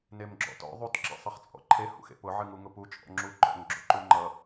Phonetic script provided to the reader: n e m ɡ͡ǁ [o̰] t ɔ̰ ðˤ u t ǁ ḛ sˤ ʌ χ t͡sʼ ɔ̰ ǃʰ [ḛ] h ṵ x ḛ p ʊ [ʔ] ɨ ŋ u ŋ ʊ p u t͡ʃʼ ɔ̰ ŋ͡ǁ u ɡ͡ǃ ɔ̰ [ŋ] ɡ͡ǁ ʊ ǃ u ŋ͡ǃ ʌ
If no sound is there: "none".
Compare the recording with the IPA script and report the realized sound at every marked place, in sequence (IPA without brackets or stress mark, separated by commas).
ɔ̰, e, ʕ, ŋ